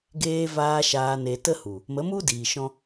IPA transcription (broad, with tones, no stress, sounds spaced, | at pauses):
ɡ eː˧ v aː˧ ʃ aː˧ n e˧ t ə˦ h u˨ | m ə˨˦ m u˦ d iː˨ ʃ ɔ̃˦